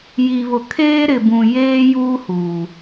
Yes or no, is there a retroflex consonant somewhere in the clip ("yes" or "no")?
no